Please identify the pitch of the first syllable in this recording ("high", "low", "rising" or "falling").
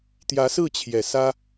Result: rising